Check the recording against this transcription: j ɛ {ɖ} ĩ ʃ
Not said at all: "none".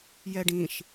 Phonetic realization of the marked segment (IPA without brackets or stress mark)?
ɖ